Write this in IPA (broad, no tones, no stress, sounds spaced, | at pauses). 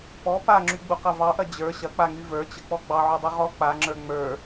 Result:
p ɔ p a ŋ͡ǁ y ɡ͡b u q ɐ v ɑ ʔ ɐ d͡ʑ ə˞ ɕ ɐ k͡p a ŋ y v ə˞ t͡ɕ ə k͡p ɔ ɡ͡b ɑ ʕ u dˤ u ʁ ɔ k͡p a ŋ͡ǁ ə˞ ŋ͡m ə˞